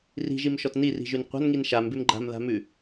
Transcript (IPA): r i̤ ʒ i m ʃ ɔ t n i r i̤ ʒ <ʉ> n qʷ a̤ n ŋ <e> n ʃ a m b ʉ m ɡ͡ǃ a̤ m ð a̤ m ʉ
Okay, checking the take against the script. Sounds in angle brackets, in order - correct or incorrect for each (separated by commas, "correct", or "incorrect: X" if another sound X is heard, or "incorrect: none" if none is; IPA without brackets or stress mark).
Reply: correct, incorrect: i